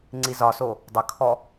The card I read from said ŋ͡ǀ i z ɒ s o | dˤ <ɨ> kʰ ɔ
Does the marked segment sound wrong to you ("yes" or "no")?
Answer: yes